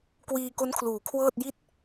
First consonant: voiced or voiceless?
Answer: voiceless